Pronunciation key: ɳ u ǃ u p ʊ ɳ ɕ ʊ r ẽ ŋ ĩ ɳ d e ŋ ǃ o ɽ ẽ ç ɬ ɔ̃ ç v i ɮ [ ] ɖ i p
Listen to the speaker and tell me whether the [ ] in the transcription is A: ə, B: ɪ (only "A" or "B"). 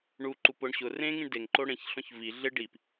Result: B